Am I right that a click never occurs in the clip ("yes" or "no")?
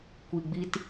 yes